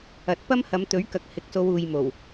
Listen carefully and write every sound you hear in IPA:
ɐ˨t̚ pɐ˥mhɐ˨˧m t̪ɵ˨˥ɥkɐ˨k̚ hɪ˨k̚so˧w uː˨jmo˨˩w

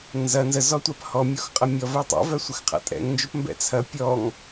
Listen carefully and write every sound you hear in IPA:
nzɐ nzəzɔtʷap hɔmʲɔxqʼɐ mʲɔvɛ tˤa̰vœ sʷəxqʰa̰tʼɛ̰ŋnd͡ʒop mbɛ̰t͡sʰɐ pʲɔŋ

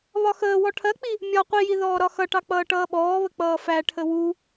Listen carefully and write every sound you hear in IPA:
βɒxəːwɔ ʈʰɜk͡pi | mʲɒ qʷiji ðɔːɾɒxʌʈɑ k͡pʌːʈʌːɓɔːβə k͡pʌːfæʈʰə wu

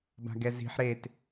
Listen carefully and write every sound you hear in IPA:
ba̤ɡɛzi̤ħ ɾet

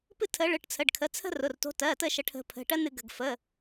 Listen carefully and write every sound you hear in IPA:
pɨ˦tʰə˨˦ɭɨ˩˧˩ʈ t͡sʰə˩˧˩ɖkʰə˩˧˩t͡sʰə̤˦ rʊ˩˧˩rto̤˨˦tɜ˩˧˩tə˦˨ ʃə˨˦ʈʰə̤˨˦pʰə̤˩˧˩ ʈɜ˦nɨ˧˩˧ɡə̤˩˧˩ɡ fə˩˧˩

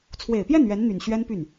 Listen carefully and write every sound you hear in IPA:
t͡sʰwe˨˩ɪ̯pjɛ˥˩n ɥɛ˧˥nn̪y˨˩n ɕɥɛ˥npy˥˩n

